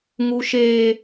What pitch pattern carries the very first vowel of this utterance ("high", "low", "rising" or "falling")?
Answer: high